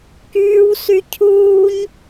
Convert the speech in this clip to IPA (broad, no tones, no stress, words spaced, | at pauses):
kyːw sycʰuːɲ